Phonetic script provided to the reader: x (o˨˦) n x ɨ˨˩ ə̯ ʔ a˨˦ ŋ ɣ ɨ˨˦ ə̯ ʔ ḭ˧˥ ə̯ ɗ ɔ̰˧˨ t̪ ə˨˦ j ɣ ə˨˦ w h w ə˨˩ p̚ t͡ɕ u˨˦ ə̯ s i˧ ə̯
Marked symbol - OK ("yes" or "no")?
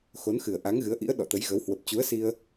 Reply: yes